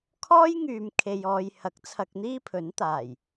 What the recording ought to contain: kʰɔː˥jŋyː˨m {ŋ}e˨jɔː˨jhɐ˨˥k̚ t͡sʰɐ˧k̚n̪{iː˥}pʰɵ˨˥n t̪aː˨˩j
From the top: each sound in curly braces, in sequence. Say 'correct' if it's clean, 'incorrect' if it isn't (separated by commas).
incorrect, correct